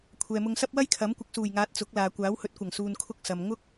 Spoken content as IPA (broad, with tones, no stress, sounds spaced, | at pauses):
kʷʰ ɛː˨ m ʊ˧ ŋ s ɐ˥ p̚ w ɐ˥ j kʰ ɐ˨˥ m kʷ ɪ˨˥ k̚ s uː˨˩ j ŋ aː˨˥ t̚ t͡s ʊ˨˥ k̚ l aː˨ kʷ aː˨˥ w h ɵ˨˥ t̚ kʷ ɐ˨˩ ŋ s uː˨ n kʰ ʊ˧ k̚ s ɐ˨ m ŋ ʊ˥ k̚